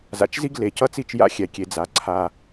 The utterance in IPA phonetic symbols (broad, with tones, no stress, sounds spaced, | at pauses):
z a̰˨ t͡ʃ z i˦ ɡ l e˨ c ʌ˦ t͡s i˦˨ t͡ʃ j a̰˦ xʲ ɛ˨ kʲ e˨ d͡z a˨ ǀʰ a˨